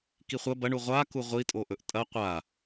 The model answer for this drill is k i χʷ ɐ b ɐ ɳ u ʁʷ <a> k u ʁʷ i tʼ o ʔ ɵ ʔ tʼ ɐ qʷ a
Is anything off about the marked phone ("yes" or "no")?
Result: no